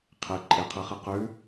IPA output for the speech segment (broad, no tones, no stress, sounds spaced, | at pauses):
qʰ e ǃʼ e qʰ ɨ χ ɨ q ʉ